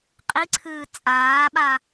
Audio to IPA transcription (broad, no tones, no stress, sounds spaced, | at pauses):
qʼ i ǀʰ ɨː t͡sʼ aː ɓ a